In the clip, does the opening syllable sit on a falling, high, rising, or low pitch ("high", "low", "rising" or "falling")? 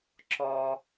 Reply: high